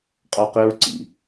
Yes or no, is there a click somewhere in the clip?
yes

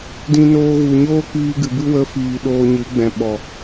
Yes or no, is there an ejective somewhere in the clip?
no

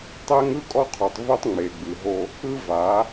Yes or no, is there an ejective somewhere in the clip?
yes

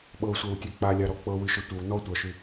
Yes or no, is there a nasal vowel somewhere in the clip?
no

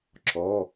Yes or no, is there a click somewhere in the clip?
yes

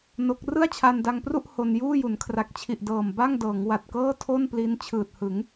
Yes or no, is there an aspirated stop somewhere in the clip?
yes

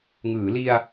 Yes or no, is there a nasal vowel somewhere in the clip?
no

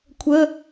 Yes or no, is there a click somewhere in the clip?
no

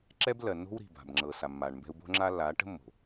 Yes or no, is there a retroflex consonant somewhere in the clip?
yes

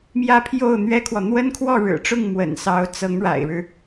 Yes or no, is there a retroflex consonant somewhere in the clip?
yes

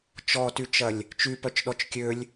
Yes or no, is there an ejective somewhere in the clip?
no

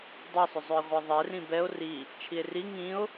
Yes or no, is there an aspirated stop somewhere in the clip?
yes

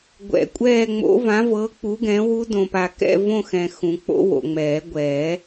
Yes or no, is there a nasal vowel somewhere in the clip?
yes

